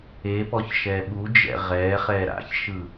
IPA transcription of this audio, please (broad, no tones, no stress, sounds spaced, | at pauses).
e p ɔ ç ʃ ɛ ɓ u d͡ʒ ɛ̰ ʁ ɛː χ ɛː ɾ a̰ ç ʃ ɯ